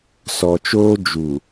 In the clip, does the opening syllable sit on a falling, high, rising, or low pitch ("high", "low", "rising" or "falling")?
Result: low